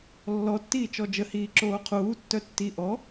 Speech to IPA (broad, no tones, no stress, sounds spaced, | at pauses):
lː ɔ tː iː t͡ʃ ɔ d͡ʒ ə h iː ǁ oː qʰ uː tː œ tː i ʔ ɔ